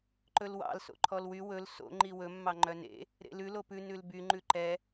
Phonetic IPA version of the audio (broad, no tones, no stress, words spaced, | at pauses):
ǃɵlwɑ̰l so̰ǃʰɔlwy wɵl so̰ ŋ͡ǃiwɵ mːɑŋ͡ǃœnḛ | ɾḛlʉ lopʉ nʉlby ŋ͡ǃʉǃɛ